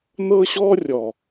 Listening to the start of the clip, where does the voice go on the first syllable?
high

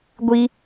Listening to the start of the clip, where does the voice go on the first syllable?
high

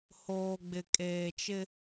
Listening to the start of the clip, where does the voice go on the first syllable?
low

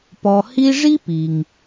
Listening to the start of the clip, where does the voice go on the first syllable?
low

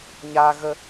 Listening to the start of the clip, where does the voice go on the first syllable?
high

